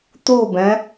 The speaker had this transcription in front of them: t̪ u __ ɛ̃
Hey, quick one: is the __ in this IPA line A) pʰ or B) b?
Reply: B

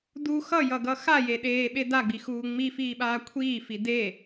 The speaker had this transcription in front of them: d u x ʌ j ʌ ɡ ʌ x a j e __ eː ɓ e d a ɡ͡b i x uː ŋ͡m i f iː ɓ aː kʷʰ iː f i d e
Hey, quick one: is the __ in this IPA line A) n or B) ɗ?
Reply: B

